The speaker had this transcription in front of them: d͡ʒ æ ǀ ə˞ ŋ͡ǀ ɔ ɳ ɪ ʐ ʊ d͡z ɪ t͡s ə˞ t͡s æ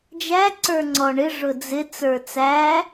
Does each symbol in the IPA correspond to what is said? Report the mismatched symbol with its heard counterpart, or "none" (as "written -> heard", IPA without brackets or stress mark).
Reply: none